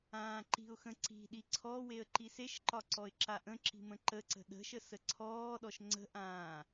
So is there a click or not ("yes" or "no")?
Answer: yes